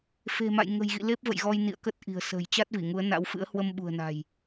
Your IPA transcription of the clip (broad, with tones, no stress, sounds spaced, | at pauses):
f e̤˨˩ m a̰˧˨ j ŋ ə̤˨˩ j ɣ ḭ˧˨ l e˦˥ p̚ v ə̰˧˨ j ɣ ɔ˧ j n ḭ˧˨ ə̯ k ə˦˥ t̚ ʔ i̤˨˩ ə̯ s ə̤ː˨˩ j t͡ɕ a˦˥ t̚ v i˧˩ ŋ u˨˦ ə̯ n a̰˧˥ w f ɨ̰˧˥ ə̯ h w ə˧ m ɓ ṳ˨˩ ə̯ n a̤˨˩ j